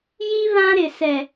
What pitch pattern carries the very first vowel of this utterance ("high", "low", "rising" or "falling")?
high